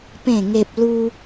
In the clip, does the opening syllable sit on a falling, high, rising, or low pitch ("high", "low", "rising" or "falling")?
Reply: falling